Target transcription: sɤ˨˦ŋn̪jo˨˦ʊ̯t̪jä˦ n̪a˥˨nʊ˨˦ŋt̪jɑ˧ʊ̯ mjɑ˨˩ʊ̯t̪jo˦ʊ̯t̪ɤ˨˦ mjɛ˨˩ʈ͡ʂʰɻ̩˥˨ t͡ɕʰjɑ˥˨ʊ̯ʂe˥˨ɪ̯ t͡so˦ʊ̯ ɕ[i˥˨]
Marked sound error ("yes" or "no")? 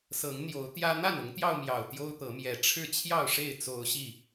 no